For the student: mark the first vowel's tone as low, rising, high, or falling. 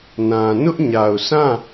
low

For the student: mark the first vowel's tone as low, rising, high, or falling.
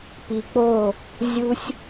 low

